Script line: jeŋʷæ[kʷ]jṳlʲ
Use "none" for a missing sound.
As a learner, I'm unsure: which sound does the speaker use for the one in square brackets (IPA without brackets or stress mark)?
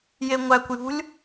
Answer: kʷ